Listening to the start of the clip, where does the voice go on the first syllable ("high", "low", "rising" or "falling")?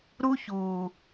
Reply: high